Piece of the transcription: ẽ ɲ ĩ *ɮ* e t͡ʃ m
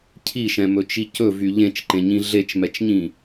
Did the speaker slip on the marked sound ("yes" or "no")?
no